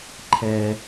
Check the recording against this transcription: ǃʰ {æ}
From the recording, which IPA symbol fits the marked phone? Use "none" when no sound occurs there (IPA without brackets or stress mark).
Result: ɛ